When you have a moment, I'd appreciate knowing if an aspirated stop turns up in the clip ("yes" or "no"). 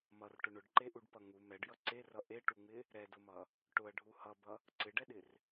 no